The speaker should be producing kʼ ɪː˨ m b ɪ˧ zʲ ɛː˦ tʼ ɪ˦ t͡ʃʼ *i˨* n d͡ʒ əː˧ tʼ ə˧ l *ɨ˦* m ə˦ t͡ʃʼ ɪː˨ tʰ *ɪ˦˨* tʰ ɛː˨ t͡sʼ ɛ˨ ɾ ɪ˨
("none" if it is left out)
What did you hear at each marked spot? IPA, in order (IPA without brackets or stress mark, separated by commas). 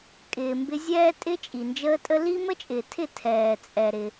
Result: i˨, i˦, ɪ˦˨